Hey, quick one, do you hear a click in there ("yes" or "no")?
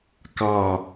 no